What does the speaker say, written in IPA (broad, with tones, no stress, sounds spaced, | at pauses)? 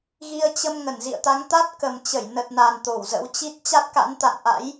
ɣ i˧ ə̯ t͡ɕ ə˧ m ŋ ə˧˩ n z ḭ˧˨ ə̯ t̪ a˨˦ ŋ t̪ a˦˥ t̚ k ə˨˩ m t͡ɕ ə˧˩ j n ə˨˩ t̚ n aː˨˩ n t̪ o˧˩ w z ə̰˧˥ w t͡ɕ i˦˥ t̚ t͡ɕ a˦˥ t̚ k a̰˧˥ n t̪ a̰˧˨ n ʔ a̰˧˥ j